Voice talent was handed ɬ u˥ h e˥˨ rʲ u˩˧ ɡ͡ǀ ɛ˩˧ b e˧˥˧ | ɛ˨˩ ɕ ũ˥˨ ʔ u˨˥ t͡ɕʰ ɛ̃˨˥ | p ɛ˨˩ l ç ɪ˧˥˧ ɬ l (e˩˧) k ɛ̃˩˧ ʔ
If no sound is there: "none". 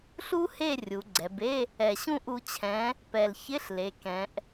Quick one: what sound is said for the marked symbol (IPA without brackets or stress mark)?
e˩˧